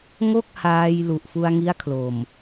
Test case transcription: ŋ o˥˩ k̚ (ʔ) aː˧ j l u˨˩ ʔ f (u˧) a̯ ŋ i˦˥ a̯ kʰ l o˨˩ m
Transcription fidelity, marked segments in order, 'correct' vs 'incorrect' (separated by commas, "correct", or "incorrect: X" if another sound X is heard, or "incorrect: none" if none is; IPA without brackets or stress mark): incorrect: h, correct